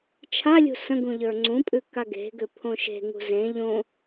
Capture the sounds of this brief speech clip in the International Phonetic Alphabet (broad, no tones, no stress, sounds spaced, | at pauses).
t͡ʃʰ a lʲ ṳ s ə̃ ɡ ũ ʎ ə˞ ŋ͡ǀ ũ pʼ ʉ k a ɡ e̤ ɡ ʏ pʰ õ ʃ e̤ ŋ ṳ z ẽ ʎ õ